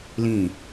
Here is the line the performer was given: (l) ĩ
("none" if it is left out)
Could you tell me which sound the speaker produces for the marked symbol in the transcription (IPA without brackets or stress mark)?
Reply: l